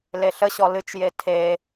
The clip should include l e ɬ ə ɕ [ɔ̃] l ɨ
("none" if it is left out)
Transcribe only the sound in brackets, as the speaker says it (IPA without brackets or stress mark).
ɔ